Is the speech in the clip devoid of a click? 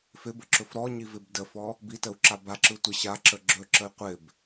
no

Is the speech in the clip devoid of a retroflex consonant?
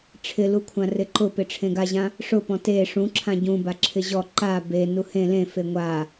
no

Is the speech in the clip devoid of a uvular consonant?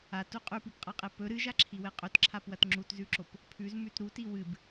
no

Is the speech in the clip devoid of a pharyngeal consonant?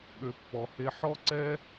no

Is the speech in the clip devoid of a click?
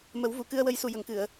yes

